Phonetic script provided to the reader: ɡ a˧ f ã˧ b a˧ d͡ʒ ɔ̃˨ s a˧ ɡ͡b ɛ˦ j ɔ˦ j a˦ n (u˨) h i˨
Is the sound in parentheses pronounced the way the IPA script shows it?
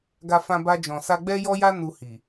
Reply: no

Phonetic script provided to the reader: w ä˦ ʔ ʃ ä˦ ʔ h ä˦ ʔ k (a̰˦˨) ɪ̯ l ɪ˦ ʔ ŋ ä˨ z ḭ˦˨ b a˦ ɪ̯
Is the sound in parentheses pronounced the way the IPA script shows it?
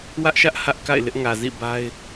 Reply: yes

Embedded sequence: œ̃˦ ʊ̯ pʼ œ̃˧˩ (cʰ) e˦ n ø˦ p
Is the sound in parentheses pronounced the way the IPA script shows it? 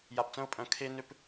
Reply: no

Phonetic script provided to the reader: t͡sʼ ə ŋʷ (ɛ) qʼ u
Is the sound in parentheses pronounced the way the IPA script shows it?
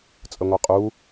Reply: yes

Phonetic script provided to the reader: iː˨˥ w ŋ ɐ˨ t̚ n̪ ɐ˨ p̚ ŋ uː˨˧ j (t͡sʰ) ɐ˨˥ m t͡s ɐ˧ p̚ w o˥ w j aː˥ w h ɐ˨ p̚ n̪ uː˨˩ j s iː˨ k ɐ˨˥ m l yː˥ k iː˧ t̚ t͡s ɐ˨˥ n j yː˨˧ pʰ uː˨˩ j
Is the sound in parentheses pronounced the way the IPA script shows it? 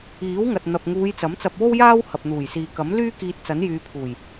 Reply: no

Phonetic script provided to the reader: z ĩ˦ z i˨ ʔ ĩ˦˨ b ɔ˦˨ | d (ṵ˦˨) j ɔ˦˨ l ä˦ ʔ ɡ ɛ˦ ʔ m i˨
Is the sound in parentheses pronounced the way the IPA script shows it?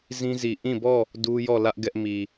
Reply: no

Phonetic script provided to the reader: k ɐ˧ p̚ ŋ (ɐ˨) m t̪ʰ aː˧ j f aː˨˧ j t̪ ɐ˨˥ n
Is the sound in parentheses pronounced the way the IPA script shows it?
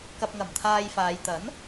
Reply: no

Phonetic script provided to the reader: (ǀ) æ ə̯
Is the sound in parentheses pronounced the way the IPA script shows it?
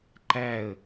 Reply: no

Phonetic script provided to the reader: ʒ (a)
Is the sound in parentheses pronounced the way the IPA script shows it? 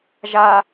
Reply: yes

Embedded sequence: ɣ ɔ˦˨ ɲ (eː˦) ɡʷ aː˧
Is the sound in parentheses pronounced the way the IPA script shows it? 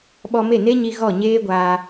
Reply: yes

